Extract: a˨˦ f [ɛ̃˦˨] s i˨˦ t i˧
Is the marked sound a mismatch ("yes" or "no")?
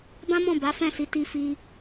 no